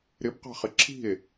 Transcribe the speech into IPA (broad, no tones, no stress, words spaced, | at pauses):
ɾɪbqɑ̤χɪ ǁʰi̤e̯